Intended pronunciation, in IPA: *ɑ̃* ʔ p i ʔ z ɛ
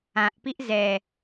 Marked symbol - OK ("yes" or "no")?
no